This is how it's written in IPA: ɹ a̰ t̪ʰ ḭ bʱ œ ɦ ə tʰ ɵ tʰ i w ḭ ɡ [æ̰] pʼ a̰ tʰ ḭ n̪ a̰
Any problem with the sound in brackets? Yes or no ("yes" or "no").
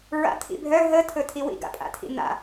yes